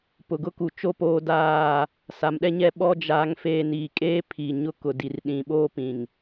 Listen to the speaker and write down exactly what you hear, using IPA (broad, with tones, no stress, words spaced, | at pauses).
pʊ˨ɡʊ˦ku˨ t͡ʃo˦poː˦daː˦˨ | sa˨mɗɛ˦ɲɛ˦ɓɔ˦ d͡ʒaː˦ŋfeː˦ niː˨kʼeː˦pʰi˨ ɲʊ˦kʊ˨di˨r ɗĩ˨ɓoː˦pĩ˨ŋ